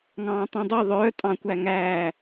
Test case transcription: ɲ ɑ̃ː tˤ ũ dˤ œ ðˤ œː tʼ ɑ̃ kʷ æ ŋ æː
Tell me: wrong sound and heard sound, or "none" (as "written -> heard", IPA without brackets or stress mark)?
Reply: ɲ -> ŋ